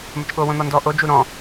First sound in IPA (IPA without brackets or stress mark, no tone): m